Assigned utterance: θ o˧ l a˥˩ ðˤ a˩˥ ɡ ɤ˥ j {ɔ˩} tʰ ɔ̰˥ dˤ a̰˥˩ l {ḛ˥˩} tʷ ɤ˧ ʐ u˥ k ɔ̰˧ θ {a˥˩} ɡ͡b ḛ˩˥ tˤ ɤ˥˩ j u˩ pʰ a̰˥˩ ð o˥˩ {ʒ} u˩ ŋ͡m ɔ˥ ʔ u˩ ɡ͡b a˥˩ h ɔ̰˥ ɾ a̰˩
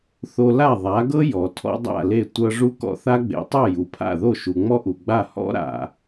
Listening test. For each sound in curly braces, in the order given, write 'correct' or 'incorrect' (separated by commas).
correct, incorrect, incorrect, incorrect